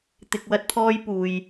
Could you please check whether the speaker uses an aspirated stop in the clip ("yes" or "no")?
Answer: yes